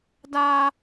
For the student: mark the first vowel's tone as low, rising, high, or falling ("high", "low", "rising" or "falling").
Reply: high